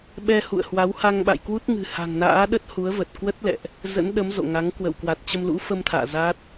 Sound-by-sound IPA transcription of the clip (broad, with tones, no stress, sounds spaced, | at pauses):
ɓ ɛ˧ h ṵ˧˨ ə̯ h w a˨˦ w h a˧ ŋ ɓ a̰˧˨ j k w u˦˥ t̚ ŋ ɨ̤˨˩ h a̤˨˩ ŋ n a̰ː˧˥ ɗ ə˦˥ t̚ h u˨˦ ə̯ v ə˨˩ t̚ k w ə˦˥ t̚ l ɛ̰˧˨ ʔ | z ə̰˧˥ n ɗ ə˨˦ m z o̰˧˨ ŋ a˨˦ ŋ k w ə̰˧˨ w k w a˨˩ t̚ t͡ɕ ə˧ m l ṵ˧˥ f ə˧ m t̪ʰ a̰ː˧˨ z a˦˥ t̚